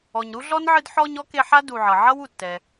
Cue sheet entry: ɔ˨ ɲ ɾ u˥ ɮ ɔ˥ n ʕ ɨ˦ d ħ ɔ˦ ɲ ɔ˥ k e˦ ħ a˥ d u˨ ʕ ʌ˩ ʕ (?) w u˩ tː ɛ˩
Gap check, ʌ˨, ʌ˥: ʌ˥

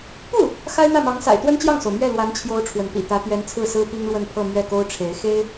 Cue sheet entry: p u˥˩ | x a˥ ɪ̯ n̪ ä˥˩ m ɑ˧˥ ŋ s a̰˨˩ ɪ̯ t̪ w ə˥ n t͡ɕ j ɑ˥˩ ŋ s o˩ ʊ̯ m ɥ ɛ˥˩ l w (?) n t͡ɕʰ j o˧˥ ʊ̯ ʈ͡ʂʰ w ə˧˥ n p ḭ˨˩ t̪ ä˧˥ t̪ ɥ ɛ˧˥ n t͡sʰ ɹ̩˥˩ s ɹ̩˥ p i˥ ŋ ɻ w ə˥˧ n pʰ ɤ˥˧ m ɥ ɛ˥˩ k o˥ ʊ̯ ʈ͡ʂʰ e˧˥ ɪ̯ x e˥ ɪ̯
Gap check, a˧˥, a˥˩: a˧˥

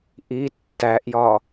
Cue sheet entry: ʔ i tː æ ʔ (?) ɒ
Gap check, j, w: j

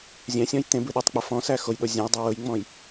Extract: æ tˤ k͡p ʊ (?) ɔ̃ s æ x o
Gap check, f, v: f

